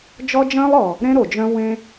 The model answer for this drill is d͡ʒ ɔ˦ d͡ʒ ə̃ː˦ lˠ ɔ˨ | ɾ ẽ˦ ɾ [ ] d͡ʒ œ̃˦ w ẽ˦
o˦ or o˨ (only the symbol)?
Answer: o˨